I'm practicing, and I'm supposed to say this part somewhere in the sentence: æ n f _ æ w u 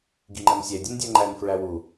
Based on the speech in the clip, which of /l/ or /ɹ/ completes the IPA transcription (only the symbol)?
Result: ɹ